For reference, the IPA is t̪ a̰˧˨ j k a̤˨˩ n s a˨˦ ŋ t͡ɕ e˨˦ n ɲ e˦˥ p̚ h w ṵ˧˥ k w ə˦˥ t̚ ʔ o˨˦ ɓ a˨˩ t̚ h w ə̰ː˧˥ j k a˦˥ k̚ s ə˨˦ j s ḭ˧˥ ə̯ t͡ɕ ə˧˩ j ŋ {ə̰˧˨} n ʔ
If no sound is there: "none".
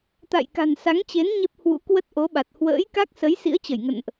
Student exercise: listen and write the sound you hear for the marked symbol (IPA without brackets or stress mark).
ə̰˧˨